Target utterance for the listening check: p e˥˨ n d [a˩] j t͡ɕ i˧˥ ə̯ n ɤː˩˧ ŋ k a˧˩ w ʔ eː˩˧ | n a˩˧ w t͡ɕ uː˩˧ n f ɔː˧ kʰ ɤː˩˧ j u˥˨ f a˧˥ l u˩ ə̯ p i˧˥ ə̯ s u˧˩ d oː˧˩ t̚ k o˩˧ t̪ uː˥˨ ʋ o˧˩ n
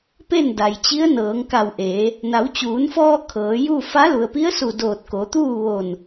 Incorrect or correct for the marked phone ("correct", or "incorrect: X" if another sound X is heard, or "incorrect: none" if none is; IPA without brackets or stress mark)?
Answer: correct